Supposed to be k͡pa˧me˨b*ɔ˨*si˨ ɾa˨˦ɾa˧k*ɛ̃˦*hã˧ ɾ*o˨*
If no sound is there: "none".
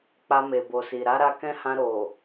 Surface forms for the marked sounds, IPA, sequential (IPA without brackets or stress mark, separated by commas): o˨, ɛ̃˦, o˨